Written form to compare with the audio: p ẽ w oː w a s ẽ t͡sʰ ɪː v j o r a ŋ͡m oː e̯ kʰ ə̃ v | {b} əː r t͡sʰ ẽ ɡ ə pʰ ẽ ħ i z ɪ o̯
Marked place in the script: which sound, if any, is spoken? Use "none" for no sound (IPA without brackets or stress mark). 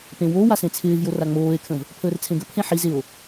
pʰ